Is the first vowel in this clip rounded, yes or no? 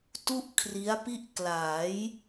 yes